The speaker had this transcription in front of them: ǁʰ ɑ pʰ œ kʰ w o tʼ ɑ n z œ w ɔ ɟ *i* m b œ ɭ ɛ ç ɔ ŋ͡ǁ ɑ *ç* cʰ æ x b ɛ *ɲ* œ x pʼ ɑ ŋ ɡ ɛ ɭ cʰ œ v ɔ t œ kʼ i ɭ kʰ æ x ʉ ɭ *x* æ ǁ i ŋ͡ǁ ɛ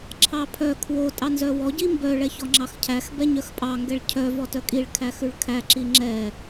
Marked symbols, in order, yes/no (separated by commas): yes, no, yes, no